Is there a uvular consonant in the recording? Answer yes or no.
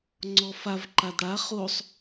yes